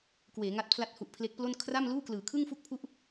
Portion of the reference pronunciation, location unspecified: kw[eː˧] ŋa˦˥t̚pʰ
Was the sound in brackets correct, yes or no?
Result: no